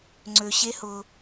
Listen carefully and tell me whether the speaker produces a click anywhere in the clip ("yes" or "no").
yes